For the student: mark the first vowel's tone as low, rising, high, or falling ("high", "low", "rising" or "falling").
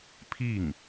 falling